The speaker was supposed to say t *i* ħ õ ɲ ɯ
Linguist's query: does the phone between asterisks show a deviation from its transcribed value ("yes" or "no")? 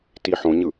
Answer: no